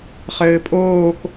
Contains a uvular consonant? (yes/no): yes